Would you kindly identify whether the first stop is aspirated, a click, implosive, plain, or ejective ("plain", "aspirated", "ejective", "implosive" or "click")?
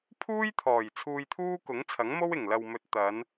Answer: aspirated